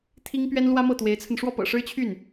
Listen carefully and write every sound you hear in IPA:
t̪ʰ i˥ ŋ p ɥ ɛ˥ n l w ä˥ m ɤ˥˩ t̪ w e˧˥ ɪ̯ t͡sʰ ə˧ n ʂ w ɔ˥˩ p ɤ̰˨˩ ʂ ɻ̩˥ t͡ɕʰ y˥˩ n

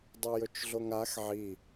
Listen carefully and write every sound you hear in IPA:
dˤ ɵ j ɵ t͡ʃ ɮ o ŋ a x ʕ i

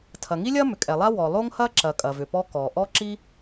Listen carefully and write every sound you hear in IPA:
tʰ ɐ˩ ŋ i˥ lʲ ɐ˥ m ʏ˩ kʼ ɛ˩ lˠ a˥ w ɔ˩ lˠ o˥ ŋ h ɐ˥ ǁ ɐ˩ kʼ ɐ˩ v ʏ˩ p ɔ˥ k ɔ˩ ʔ ɔ˥ ǁ i˥

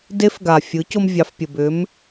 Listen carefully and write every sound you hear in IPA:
d e˧˥ f ɡ a˩ fʲ ɯ˩˧ c o˧ m vʲ ɑ˩˧ f pʲ ə˩ b ʏ˩˧ m

